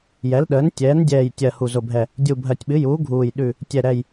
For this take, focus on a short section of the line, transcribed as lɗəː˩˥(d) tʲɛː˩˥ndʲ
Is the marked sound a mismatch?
yes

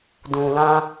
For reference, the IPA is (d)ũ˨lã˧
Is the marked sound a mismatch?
no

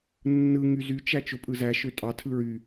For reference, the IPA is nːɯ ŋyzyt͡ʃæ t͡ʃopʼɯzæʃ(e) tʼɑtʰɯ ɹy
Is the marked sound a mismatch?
yes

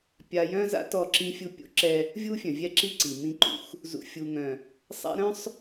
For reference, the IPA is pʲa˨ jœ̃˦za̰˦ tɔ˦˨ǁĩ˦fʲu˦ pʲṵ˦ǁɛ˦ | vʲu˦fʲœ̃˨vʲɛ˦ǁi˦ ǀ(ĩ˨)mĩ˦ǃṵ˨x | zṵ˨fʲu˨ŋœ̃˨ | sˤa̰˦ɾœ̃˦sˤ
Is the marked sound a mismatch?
yes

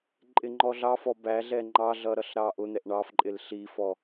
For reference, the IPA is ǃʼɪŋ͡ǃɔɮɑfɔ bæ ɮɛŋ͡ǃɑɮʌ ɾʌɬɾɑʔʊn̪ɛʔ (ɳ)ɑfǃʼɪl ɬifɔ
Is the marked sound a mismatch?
no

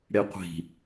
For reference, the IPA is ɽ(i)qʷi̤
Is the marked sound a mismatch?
yes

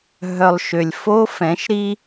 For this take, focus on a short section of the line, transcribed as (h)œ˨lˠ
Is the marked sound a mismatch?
yes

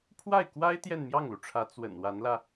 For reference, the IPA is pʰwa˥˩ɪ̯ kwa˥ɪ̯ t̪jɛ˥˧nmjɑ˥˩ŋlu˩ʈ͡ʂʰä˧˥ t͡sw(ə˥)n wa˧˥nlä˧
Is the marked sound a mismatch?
yes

